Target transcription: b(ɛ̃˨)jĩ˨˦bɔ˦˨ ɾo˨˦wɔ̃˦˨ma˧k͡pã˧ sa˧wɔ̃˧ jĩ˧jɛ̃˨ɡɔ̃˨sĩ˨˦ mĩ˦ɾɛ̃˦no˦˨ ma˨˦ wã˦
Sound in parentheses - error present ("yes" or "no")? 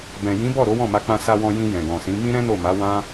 no